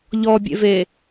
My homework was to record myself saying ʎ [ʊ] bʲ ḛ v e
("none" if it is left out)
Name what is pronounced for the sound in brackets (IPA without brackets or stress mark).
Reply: ɔ